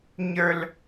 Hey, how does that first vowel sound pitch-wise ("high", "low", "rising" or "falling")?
high